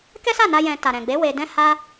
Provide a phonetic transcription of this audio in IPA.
kɛ˦sa˦˨na˧ jɛ̃˧ ta˨ɾɛ̃˨ɡ͡be˨˦ we˧dɛ̃˦ ha˦

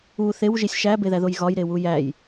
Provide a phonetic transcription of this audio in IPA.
u θewʒisʲ ʃæbeðæðoj ɣɒjɾewu jæj

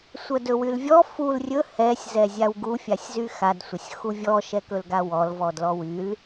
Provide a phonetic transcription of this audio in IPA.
sʷɐdɵwylvʲɔ ful rʲɵ hɛsʲ zɛzʲawɡu fʲasʲzyxad sʷɐsʲxuvʲɔ ʃɛkɵlɡawɔl vɔdlɔwyl

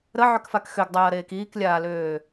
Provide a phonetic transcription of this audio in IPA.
ɾəʕʏkfak xøɡdˤʏːɐ̯ɾeːk iːklʲaːløː

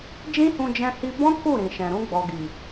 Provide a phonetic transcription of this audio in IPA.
d͡ʒĩ˦hũ˧d͡ʒɛ̃˧hi˧ bɔ̃˦ ku˦˨ɾĩ˨ʃɛ̃˨ɾũ˧ ɡ͡bɔ˨ɡi˨

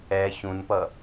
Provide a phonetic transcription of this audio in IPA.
ɛ çũnpʌ

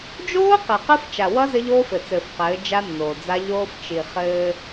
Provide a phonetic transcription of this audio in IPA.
d͡ʒoː˦ qe˨qɯ˦ft͡ʃa˨wʌ˦ zɘ˦ʎoː˦fɘ˨t͡sɘː˨f qɘː˨˦ d͡ʒa˦nːoː˨d͡za˦ ʎoː˦f t͡ʃi˨ χɘː˦

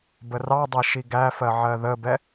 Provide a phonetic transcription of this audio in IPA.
bərɑdˤɜ ʃiɡæfɜ ʕɜðəbɛ

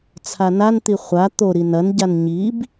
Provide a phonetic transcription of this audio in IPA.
t͡sʰanant̪i χʷa t̪oɾi nɐnɟan ɲib

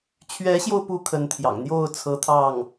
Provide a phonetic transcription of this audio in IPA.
t͡ɕʰɥɛ˧˥ɕjo˧ʊ̯pu˧˥ kʰə˧˥nt̪ʰjɑ̰˨˩ŋ n̪jo˥˩ʊ̯ t͡sʰɤ˧˥t̪ʰɑ˥˩ŋ

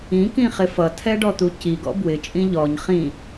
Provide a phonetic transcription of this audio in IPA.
ĩkĩχɪ fʌtʰɛɖɔt̪u ciɡɔ̰ bwɪt͡ʃʼĩ ʎɔɲ χĩ

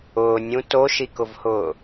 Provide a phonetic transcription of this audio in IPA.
ʊːnʲũ toʃikʊvhʊː

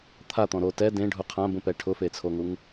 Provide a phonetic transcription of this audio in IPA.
t̪ʰat̪ɔ̃ ɾo tɛ dẽɖʱu qʰãbũpɛ ʈʰʊfet͡sʰoŋuŋ

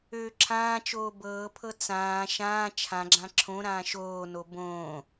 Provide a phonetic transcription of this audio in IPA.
øːǁʰãːt͡ʃoː bɤːpʰɤ t͡sãː ʃãː t͡ʃʰãɡ͡ǁã ǁʰõ ɾãːʃoːno bõː

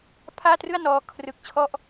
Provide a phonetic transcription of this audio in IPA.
pʰaː˥˩trɯ˥˩a̯ nɔː˦˥kʰrɯ˦˥k̚t͡ɕʰɔ˥˩ʔ

